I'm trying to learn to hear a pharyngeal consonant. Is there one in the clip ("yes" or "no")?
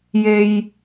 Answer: no